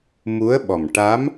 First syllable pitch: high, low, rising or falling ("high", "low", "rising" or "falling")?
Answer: rising